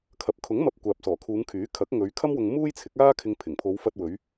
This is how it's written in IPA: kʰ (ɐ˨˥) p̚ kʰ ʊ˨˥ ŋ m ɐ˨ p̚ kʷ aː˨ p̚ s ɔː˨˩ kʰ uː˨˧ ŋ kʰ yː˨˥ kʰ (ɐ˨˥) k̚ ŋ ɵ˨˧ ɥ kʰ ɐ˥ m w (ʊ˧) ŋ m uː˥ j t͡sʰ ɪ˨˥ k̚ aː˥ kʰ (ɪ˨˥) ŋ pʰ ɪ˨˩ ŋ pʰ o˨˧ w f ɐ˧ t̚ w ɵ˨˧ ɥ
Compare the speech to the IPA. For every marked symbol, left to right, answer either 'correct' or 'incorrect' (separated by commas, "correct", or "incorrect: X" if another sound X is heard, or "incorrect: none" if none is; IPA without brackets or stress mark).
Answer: correct, correct, correct, incorrect: ɪ˧